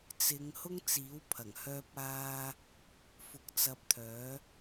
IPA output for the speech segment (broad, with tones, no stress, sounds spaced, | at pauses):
t͡s ɪ˨˧ ŋ h ʊ˥ ŋ t͡s iː˨˥ w pʰ ɐ˨˩ ŋ h œː˧ p̚ aː˧ | f ʊ˧ k̚ t͡s ɐ˧ p̚ t̪ʰ œː˨˥